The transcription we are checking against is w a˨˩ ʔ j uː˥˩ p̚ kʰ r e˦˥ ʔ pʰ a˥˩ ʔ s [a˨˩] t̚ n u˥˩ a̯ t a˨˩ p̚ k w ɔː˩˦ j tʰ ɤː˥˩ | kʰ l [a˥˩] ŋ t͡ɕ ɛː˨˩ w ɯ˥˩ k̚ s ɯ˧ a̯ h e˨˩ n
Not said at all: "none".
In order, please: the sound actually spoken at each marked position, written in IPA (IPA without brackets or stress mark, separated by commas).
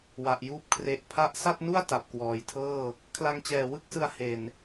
a˥˩, a˧